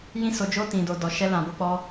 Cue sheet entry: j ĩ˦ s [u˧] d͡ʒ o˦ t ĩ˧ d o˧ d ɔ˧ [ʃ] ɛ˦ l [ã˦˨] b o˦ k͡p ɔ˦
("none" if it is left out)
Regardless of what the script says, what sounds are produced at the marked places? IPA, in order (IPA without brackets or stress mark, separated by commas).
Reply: o˧, ʃ, ã˧